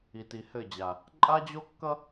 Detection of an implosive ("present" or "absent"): absent